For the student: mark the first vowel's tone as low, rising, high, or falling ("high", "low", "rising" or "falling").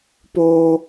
high